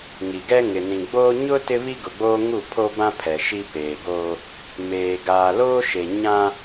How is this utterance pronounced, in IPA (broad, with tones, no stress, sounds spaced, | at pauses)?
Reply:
ŋ i˨ ɡ ɛ˦ ŋ ɪ˨ n ĩ˨ ɡ͡b oː˦ ɲ ʊ˦ t ɪ˦ β i˦ ɡ ʊ˨ ɡ͡b oː˦ ŋ u˦˨ pʰ o˦ b ã˦ pʰ ɛ˨ ʃ i˦ p eː˨ ɡ oː˦ | m eː˨ ɡ aː˨ l oː˦ ʃ e˨ ɲ ã˦